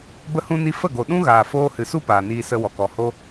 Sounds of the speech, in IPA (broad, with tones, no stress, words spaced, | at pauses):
bə˦hũ˦ni˦ fə˦˨ɡo˨ɗũ˦ɣaː˨ foː˧hɨ˨su˦ paː˨niː˧sə˧wɔ˨k ɔ˨ho˦